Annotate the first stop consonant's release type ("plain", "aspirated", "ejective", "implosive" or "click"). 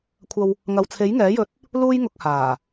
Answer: aspirated